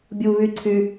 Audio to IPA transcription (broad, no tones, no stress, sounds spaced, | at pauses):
bʲ u β y ǀʰ y